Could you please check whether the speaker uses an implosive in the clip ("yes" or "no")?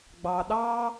yes